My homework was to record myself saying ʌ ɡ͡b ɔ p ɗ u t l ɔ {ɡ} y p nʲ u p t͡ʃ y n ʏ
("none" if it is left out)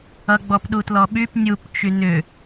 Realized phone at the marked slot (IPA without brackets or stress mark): ɓ